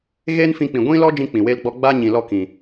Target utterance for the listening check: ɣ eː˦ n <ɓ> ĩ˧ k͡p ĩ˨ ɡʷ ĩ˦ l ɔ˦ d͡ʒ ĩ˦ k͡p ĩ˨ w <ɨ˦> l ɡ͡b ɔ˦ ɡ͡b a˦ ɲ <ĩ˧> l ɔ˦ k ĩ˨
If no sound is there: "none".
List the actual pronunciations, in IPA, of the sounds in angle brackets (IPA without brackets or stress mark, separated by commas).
f, e˦, ĩ˨